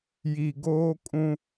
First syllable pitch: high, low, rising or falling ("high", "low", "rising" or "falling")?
low